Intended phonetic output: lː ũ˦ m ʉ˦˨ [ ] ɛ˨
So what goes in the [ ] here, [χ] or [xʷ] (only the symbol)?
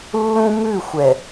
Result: xʷ